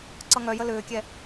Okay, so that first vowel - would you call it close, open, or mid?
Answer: mid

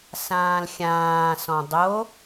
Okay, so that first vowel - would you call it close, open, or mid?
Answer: open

